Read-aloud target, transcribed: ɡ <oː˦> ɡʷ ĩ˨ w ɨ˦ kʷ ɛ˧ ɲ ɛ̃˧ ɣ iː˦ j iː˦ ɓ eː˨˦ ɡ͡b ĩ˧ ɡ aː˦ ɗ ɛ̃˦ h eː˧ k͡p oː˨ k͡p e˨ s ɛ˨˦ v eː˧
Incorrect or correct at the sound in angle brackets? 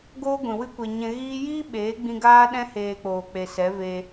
correct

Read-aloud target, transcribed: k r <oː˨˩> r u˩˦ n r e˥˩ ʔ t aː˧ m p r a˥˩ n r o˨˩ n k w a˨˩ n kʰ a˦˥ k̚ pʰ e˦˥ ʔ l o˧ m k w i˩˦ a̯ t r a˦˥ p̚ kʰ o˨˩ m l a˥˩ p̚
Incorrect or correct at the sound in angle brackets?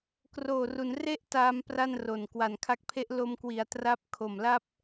correct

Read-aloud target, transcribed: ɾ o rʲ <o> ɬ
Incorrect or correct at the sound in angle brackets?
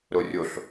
correct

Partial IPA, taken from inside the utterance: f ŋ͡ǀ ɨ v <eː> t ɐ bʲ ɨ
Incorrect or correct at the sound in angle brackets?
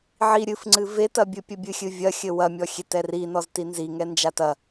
incorrect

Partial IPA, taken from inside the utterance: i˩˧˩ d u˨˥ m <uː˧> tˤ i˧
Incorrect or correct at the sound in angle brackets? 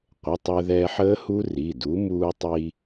correct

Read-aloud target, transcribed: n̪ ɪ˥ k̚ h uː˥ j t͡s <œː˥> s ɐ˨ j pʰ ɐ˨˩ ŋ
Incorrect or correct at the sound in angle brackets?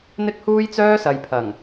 correct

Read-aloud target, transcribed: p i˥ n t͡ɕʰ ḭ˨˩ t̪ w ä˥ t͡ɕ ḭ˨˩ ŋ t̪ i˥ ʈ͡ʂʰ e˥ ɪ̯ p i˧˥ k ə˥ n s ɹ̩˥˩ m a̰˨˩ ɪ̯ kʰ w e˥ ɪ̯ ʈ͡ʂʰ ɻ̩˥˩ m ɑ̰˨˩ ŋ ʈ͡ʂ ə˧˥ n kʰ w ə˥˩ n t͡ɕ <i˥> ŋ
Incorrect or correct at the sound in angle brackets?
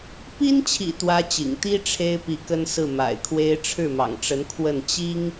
correct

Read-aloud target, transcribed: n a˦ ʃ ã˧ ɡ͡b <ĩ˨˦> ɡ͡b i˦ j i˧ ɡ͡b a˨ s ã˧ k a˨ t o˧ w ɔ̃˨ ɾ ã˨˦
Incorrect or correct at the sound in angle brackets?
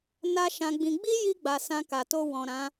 incorrect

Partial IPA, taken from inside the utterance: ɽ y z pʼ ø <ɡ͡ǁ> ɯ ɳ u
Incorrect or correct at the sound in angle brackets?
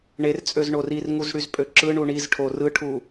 incorrect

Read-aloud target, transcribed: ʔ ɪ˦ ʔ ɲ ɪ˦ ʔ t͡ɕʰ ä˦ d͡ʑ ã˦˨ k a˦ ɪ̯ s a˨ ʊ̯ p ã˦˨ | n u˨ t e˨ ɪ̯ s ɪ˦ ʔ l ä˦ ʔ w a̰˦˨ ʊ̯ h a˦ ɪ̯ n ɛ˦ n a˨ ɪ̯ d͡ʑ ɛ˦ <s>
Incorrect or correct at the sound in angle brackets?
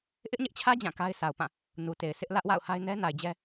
incorrect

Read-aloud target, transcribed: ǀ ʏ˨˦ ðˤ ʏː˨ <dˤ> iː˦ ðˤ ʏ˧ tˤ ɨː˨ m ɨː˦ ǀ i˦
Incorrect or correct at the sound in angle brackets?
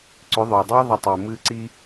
correct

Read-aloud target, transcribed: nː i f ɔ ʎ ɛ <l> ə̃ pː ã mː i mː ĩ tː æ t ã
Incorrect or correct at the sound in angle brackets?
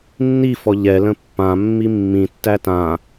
correct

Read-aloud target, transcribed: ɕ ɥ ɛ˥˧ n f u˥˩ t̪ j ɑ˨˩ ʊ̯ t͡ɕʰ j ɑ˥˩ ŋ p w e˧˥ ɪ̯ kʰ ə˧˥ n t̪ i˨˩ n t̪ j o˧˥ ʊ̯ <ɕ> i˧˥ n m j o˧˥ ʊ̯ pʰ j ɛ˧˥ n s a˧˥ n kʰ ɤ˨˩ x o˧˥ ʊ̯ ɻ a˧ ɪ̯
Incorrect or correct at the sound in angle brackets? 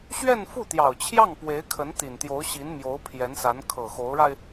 correct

